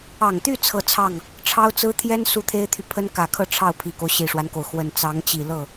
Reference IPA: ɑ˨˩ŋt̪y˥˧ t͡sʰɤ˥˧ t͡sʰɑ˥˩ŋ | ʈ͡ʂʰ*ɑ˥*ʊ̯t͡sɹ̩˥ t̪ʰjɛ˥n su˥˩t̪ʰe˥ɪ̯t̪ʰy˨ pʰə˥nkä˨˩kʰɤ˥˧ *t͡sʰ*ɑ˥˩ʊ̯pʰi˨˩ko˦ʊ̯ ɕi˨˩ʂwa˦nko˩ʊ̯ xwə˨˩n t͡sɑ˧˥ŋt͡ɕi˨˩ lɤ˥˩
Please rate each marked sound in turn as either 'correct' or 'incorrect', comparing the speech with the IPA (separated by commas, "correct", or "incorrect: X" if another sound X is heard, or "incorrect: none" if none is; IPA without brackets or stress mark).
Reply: correct, incorrect: ʈ͡ʂʰ